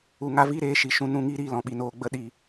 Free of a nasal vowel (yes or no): no